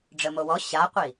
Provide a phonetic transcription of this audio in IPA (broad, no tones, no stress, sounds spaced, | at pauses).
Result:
ɖ͡ʐ ə m o w ɔ ɕ a qʷ i